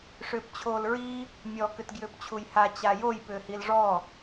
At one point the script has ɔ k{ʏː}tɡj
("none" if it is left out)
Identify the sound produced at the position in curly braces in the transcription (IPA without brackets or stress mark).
ʏ